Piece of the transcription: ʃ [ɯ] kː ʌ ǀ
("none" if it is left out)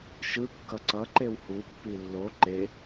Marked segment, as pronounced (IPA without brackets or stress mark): ɯ